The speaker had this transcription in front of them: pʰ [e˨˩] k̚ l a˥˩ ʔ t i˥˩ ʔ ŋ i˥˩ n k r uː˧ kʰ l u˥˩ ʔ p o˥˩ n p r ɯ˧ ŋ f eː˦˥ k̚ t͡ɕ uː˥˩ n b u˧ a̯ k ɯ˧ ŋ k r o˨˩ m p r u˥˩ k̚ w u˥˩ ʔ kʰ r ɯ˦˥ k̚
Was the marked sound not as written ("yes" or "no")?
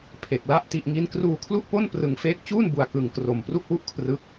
no